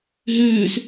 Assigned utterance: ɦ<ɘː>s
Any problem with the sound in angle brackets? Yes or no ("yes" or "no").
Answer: yes